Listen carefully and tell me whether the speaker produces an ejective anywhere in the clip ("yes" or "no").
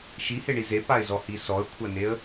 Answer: no